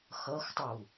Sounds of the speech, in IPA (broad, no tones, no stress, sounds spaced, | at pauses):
x ʌ x tˤ u